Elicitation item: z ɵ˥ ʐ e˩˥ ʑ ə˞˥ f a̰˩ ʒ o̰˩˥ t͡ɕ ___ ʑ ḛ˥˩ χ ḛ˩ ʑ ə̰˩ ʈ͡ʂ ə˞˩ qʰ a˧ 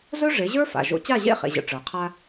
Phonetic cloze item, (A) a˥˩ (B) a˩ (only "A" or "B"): A